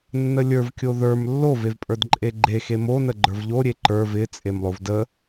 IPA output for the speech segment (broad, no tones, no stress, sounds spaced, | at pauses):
nː ə lʲ ə˞ v kʲ o ð ə˞ m lː o v e v pʼ ə˞ d ǃʼ e ɡ͡ǃ e x e m o n ə ɡ͡ǃ ə˞ v ʎ o ɾʲ e ǃ ə˞ v ɪ t͡sʼ e m lˠ o v d ə